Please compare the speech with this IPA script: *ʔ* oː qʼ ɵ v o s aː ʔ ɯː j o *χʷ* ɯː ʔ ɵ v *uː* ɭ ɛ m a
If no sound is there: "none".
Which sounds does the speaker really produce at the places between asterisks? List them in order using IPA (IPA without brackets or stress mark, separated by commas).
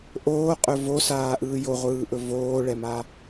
ʔ, ʁʷ, oː